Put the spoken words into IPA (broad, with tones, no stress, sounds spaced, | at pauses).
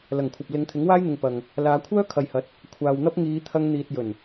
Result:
l ɐ˨˩ ŋ kʷʰ ɐ˨ p̚ l ɪ˨˧ ŋ t̪ʰ ɪ˨˥ ŋ w aː˥ j n̪ ɪ˨ ŋ p ɐ˨ ŋ | l aː˨˧ kʷʰ œː˥ kʰ ɐ˨ j h ɐ˨˥ t̚ | kʷʰ aː˨ w n̪ ɐ˥ p̚ ŋ iː˨˧ t̪ʰ ɐ˧ ŋ n̪ iː˨ t̚ j ɵ˨˩ n